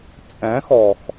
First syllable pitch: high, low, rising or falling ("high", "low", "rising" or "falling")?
rising